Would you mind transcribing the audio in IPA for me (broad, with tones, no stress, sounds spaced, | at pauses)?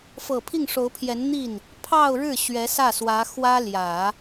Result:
f ɤ˨˩ pʰ i˥˩ ŋ ʂ o˧˥ ʊ̯ pʰ j ɛ˧˥ n n̪ i˥˩ n | pʰ ɑ˥˧ ʊ̯ ɻ ɻ̩˥˩ ɕ ɥ ɛ˧˥ s ä˥˩ s w ä˧˥ x w ä˥ l j ä˨˩˦